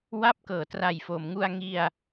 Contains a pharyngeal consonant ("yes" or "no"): no